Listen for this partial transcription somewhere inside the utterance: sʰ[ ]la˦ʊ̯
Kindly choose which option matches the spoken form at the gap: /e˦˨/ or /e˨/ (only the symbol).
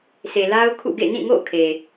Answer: e˨